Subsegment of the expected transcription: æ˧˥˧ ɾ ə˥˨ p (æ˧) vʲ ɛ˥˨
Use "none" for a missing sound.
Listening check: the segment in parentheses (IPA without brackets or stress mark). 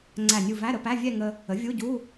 æ˧˥˧